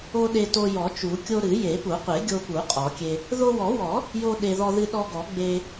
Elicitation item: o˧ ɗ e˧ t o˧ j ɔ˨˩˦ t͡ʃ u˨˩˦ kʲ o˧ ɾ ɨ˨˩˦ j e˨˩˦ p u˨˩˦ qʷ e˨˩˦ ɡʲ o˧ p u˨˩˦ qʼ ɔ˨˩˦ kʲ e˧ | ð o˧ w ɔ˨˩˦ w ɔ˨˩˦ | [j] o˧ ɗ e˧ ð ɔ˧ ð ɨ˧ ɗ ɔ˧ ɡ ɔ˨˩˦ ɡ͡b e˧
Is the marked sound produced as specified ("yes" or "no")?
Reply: yes